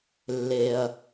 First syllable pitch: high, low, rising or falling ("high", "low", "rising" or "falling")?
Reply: low